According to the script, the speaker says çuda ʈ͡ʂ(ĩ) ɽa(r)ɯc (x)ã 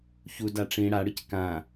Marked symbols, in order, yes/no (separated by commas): yes, no, no